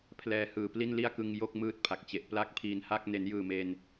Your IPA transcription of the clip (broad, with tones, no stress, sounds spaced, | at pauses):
pʰ l ɛː˧ h ɯː˨˩ p l i˥˩ n l i˥˩ a̯ k ɯ˧ ŋ j o˥˩ k̚ m ɯː˥˩ t̚ pʰ a˨˩ k̚ t͡ɕ e˨˩ ʔ p l a˥˩ k̚ pʰ iː˧ n h a˥˩ k̚ n e˩˦ n j ɯː˨˩ m e˧ n